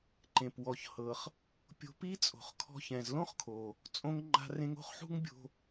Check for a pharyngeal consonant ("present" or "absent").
present